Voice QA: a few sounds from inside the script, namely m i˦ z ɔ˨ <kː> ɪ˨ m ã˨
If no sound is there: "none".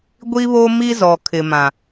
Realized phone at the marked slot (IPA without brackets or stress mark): kʰ